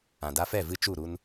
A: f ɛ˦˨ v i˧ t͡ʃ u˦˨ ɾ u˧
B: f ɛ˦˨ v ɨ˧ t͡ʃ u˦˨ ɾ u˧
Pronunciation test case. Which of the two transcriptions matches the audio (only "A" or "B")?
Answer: B